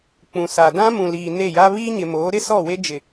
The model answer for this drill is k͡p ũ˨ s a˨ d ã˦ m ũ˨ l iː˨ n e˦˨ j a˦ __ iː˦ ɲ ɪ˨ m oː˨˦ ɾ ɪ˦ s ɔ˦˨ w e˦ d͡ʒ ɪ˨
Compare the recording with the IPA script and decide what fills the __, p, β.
β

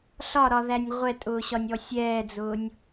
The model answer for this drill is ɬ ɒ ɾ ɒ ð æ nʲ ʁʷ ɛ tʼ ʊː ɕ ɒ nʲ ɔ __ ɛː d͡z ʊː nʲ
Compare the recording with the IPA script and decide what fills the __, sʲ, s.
sʲ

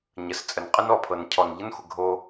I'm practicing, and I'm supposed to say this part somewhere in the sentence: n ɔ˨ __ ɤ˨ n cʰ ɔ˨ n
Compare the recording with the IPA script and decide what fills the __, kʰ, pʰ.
pʰ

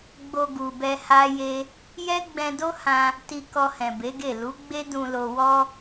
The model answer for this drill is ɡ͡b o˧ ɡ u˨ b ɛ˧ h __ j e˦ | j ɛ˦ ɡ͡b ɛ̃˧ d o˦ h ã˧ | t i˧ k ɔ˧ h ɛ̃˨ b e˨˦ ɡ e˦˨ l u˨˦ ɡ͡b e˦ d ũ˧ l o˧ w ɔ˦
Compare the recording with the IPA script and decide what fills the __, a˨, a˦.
a˦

